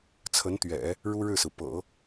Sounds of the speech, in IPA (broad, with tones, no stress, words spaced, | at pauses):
t͡sʰə˧˥nt̪ɥɛ̰˨˩˦ | ɻu˥ɻɻ̩˥˩sɹ̩˩ pɤ̰˨˩˦